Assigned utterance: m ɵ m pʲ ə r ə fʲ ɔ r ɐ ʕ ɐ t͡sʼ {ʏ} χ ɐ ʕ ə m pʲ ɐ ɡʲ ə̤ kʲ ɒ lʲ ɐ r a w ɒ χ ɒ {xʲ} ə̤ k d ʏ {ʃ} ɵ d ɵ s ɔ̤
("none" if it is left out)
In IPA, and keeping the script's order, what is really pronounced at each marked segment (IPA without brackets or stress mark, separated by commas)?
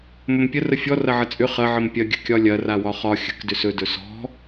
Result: ʏ, xʲ, s